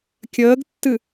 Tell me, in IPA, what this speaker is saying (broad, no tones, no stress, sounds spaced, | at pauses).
kʲ əː ɡ tː ɨ